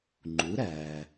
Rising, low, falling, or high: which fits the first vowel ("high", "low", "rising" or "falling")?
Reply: rising